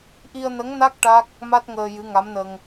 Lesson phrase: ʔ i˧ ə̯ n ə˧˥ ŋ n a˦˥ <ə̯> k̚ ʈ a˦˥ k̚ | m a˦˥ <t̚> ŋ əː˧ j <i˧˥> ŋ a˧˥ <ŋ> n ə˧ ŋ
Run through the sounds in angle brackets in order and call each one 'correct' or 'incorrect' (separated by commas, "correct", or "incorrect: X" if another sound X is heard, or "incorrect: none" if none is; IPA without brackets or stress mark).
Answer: incorrect: none, correct, incorrect: ɨ˧˥, incorrect: m